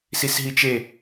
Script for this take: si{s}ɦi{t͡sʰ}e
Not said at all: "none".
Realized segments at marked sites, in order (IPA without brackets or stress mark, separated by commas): s, t͡ʃ